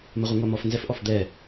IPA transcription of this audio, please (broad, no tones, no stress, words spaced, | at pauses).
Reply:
mɘʁʷiŋʷamɔf nzɛfʔɔfd̪ɛ